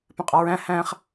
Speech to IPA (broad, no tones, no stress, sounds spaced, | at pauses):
p ɛ̃ qʼ ɒ ɹ æ̃ h æ̃ χ